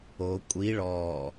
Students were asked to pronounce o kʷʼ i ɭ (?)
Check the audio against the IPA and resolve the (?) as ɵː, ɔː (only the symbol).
ɔː